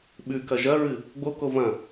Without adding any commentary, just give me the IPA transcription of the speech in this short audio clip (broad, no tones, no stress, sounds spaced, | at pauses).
ɓ ʉ k ɐ ʒ ɐ ɹ ɨ | ɡ͡b o k o v ɐ̃